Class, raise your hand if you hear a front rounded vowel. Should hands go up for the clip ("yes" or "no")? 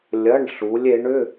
yes